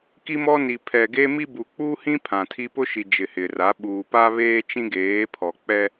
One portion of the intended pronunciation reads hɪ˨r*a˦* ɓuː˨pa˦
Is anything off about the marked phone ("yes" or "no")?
yes